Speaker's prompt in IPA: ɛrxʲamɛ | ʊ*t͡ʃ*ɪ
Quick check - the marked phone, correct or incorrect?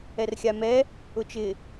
correct